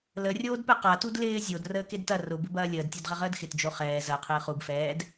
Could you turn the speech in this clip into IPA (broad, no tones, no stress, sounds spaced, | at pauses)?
l ə rʲ oː d p ɛ q a t u d l ɪː zʲ o d r əː k e d t ɐ r ʊ b ɪ b ɐː lʲ əː d tʲ o d ʁ ɐ ʁ əː d x ɪ t d͡ʒ o χ ɛː z ɐ qʰ ɪː χ u b f ɛː d